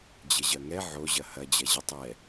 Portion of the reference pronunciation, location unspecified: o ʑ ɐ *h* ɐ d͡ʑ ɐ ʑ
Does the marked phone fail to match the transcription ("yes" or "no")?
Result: no